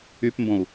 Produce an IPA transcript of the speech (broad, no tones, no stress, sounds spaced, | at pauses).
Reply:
y p m b õ u̯